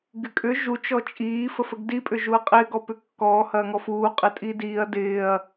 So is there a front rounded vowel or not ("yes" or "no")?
yes